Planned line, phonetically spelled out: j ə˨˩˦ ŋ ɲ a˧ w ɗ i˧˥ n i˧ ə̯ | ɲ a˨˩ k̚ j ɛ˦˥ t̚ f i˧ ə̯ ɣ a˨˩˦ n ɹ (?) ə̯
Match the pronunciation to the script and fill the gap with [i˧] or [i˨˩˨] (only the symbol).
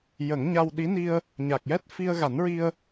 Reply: i˧